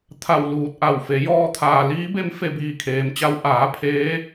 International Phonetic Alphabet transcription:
t̪ʰa˧˩w luː˧˩t̚ʔa˧˩wfe˩˧ jɔː˧t̪ʰaː˩liː˧˥be˧˥m fe˧biː˧˩kʰeː˩mt͡ɕa˧w ʔaː˩˧ pʰeː˧˥

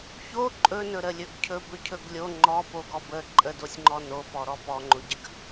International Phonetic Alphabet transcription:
ço ǃʼɵnɵɾəlʲɵɡ cʰɵbɵcʰɵɡ lʲo ŋ͡ǃɔpoɡɔ bə ǃʼədosʲŋ͡ǃɔ nopɔɾɔ pɔŋ͡ǃoɟəɡ

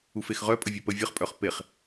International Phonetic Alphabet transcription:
ufexʁœ pʼəvʲœpə vʲəχ pʼœχpeχ

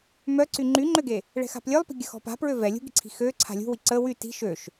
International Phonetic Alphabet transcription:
mœǀy ŋ͡ǃyŋ͡ǃøɡe | ɭɛ̤xa̤plʲœlˠpi̤ ɡʲəxɔ̤pa̤ pɹøvɛ lʲṳɡi̤ǀʰi̤ xø ǀʰa̤lʲṳwi ǀə wy ti̤ ʃøʃ

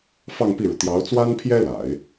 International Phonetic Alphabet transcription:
fɑ˥˧ŋpi˥˩ɻu˩ t̪jɑ˧˥ʊ̯t͡swa˥npʰjɛ˥ la̰˨˩˦ɪ̯

